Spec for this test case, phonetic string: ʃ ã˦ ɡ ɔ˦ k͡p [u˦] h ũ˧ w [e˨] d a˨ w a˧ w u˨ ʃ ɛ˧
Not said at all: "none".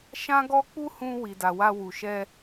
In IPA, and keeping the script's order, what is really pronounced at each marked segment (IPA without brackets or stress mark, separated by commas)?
u˦, i˨